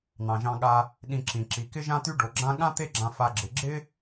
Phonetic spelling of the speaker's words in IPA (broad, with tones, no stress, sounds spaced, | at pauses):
n̪ ɑ̃˩ ʒ ɑ̃˨ ɠ a˨ | ɗ ĩ˨ ǁ ĩ˩ ǁ i˩ k ɪ˦ ʒ ã˦ t̪ y˦ ɖ o˩ ɡ͡ǁ ã˦ ɠ ã˥ t̪ e˦ ɡ͡ǁ ã˨ f a˨ ɡ͡ǁ ɪ˩ ɡ͡ǁ ɪ˥